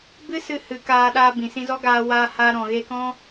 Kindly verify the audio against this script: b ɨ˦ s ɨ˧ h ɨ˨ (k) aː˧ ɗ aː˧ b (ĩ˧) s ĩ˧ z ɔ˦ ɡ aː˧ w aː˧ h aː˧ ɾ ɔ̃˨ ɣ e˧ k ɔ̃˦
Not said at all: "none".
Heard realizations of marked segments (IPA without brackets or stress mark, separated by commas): k, ĩ˨